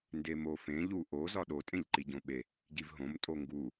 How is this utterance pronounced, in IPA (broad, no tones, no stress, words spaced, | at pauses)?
ndemofẽ ʎuʔo zɒɗo tʼẽʎǃiɟõɓe | ɟivɦõm tʼoŋɡu